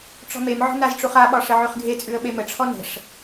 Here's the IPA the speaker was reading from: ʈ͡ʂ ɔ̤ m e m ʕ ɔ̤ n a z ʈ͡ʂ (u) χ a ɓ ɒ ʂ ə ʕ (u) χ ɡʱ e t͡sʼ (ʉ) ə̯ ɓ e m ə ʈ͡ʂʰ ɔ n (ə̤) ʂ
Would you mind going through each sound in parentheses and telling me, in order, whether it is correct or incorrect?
correct, incorrect, correct, correct

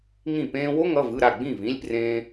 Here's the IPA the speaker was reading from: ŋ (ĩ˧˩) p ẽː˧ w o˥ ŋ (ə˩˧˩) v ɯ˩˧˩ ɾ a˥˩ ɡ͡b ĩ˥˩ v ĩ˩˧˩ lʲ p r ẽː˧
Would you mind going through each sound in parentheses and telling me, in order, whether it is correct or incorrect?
correct, incorrect

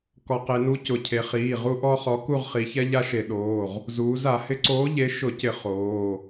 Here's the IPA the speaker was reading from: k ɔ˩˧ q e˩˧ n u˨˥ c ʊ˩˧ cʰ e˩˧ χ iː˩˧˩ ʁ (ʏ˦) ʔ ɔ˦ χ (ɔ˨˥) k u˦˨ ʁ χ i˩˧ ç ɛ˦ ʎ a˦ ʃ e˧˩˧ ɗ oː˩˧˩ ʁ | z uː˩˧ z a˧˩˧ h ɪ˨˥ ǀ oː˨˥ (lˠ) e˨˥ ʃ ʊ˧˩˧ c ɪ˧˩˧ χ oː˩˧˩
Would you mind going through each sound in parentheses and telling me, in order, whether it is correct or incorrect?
incorrect, correct, incorrect

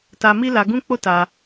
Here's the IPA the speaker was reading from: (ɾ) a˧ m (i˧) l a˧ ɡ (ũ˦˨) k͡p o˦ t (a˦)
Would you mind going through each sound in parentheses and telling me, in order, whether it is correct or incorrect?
incorrect, incorrect, incorrect, incorrect

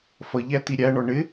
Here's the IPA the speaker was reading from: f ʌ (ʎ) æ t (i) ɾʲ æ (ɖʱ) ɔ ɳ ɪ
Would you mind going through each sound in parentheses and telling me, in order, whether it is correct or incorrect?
correct, correct, incorrect

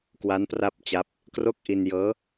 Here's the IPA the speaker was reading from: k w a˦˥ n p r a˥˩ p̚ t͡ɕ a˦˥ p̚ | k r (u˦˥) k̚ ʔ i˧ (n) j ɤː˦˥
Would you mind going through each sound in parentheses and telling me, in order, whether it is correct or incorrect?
incorrect, correct

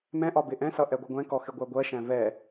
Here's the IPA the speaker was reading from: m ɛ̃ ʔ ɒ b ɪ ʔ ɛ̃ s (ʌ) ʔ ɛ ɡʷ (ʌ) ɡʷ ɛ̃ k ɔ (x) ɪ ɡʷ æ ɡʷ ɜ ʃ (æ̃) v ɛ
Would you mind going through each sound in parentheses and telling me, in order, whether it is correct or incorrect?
correct, correct, correct, correct

